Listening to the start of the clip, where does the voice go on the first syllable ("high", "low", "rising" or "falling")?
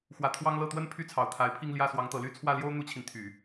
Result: rising